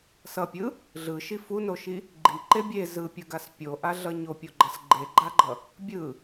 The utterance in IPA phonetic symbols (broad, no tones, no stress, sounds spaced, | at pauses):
s ʌ pʲ ɯ | ɮ ɯ ʃ i f u n o ʃ i | ɡ͡ǃ i ǃ e bʲ e z ɯ pʲ ɯ ɡ a s pʲ o ʔ a ɮ ʌ ɲ o pʲ o ɡ͡ǃ ʌ s ɡ͡ǃ e ɡ͡ǃ a ɡ͡ǃ ʌ | bʲ ɯ